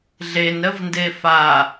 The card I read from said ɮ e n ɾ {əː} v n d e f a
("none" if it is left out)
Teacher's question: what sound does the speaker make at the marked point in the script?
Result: ə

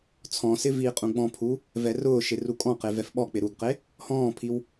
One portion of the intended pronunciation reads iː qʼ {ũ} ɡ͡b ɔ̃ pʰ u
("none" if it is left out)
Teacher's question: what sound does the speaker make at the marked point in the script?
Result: ũ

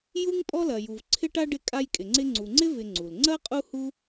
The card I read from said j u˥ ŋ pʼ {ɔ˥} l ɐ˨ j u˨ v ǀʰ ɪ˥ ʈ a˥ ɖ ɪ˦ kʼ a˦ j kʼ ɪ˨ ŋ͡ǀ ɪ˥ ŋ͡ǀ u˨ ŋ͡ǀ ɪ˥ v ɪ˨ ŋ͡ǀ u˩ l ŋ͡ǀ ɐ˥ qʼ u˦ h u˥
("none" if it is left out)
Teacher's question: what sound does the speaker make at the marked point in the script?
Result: ɔ˥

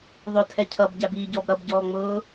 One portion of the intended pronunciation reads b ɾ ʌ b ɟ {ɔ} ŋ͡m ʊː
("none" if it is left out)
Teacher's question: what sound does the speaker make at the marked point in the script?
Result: ɔː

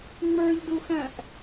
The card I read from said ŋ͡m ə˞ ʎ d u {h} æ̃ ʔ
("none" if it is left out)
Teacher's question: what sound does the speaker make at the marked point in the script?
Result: x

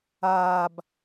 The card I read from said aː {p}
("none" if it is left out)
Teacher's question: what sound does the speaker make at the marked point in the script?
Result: b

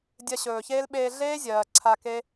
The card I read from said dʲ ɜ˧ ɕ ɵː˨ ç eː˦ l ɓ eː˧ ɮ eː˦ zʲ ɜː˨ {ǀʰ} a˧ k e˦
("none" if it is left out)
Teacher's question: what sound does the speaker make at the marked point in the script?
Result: ǀʰ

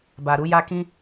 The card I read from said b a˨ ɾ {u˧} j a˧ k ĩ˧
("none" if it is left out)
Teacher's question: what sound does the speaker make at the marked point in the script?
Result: u˧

